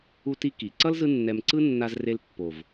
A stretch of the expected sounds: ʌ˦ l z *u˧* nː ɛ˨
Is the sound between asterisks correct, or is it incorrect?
incorrect